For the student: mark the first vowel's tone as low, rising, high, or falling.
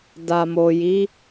low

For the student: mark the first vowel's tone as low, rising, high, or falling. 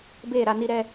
falling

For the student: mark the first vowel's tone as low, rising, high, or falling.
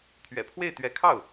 low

